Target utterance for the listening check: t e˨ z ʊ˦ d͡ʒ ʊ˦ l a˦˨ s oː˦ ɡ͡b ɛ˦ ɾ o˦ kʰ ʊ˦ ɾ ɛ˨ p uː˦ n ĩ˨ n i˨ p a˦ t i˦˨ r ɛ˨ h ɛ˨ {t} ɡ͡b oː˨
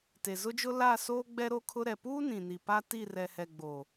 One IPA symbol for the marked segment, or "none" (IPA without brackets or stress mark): none